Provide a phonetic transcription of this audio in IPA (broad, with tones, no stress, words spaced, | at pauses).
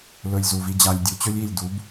lɵ˧lʲzu˨vi˧d͡ʑa˧lʲ dʲu˨t͡ɕɵ˦lʲi˦˨lʲdu˨˦b